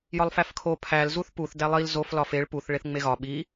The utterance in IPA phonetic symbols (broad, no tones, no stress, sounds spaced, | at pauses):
j ɒ lˠ f æ f kʰ o pʰ æ l z u θ p u θ d æ lˠ i l z o f l ɒ f e ɭ p u θ ɭ e θ ŋ͡m e ɣ ɒ ɓ i